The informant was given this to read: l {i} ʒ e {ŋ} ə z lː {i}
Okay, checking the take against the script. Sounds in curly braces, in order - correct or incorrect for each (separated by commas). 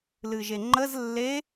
incorrect, incorrect, incorrect